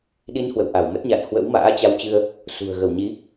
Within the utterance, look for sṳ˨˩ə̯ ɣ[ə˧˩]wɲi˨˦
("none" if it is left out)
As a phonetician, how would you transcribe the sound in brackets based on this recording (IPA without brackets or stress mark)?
ə˧˩